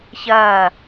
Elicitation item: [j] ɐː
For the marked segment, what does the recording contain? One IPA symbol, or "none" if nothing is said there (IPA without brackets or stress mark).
ç